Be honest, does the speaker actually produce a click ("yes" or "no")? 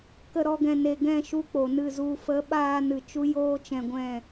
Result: no